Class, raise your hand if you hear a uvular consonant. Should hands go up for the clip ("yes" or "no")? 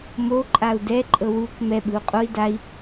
yes